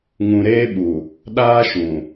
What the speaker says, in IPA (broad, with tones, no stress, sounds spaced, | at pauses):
ŋ ũ˨ ɾ eː˦ ɓ u˨ | ɗ aː˦ ʃ ũ˨